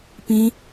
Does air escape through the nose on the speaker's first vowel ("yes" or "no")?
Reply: yes